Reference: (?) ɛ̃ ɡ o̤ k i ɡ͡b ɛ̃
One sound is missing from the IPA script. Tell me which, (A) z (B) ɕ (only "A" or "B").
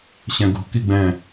B